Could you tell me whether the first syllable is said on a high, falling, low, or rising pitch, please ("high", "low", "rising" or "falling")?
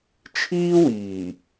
high